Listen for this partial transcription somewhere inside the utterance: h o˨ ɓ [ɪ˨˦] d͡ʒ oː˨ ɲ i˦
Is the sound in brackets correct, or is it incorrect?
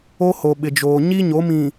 incorrect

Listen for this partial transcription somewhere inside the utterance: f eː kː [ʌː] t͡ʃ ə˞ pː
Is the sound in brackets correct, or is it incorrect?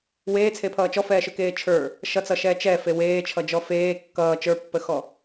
correct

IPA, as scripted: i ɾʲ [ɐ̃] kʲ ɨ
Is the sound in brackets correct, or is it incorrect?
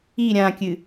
incorrect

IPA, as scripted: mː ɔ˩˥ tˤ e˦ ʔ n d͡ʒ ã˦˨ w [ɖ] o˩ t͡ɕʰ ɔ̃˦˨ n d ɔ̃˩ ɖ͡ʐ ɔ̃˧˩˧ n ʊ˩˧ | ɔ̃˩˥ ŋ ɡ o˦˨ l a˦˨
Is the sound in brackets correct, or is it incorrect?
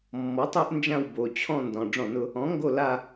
incorrect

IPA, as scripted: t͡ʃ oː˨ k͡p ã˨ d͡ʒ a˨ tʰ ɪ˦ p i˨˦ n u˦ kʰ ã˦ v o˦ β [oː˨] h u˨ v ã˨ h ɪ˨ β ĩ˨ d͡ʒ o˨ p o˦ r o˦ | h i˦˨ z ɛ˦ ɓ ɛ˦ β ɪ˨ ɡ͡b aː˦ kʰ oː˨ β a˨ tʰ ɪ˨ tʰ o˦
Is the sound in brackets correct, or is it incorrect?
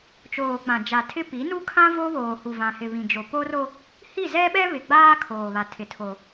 correct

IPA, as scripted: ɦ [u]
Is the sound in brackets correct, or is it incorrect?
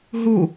correct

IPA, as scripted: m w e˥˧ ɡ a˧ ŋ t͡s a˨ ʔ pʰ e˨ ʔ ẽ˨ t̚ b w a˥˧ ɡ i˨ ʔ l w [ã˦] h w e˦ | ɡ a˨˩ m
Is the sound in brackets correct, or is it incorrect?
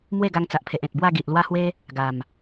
incorrect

